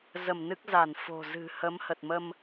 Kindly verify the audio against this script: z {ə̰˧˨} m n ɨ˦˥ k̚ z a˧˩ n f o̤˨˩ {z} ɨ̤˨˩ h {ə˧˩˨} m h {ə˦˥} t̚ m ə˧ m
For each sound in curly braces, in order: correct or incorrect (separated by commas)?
incorrect, correct, incorrect, incorrect